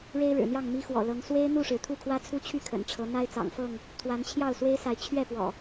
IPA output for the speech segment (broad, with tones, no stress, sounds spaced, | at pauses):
ɻ e˦ ɪ̯ ɻ ɻ̩˨˩ n̪ j ɑ˥˨ ŋ m i˦ x w ɔ̰˨˩ l ɤ˨˦ ŋ s w e˦ ɪ̯ n̪ u˥˨ ʂ ɻ̩˩ t̪ʰ u˥˨ kʰ w ä˦ t͡sʰ u˦ t͡ɕʰ y˥˨ kʰ ə̰˨˩ n ʈ͡ʂʰ ɤ˨˦ n̪ a˦ ɪ̯ t͡s ɑ̰˨˩ ŋ f ɤ˥˨ ŋ | t̪ʰ w a˨˦ n t͡ɕʰ j ɑ˥˨ ʊ̯ s w e˦ ɪ̯ s a˨˦ ɪ̯ t͡ɕʰ ɥ ɛ˥˨ p w ɔ̰˨˩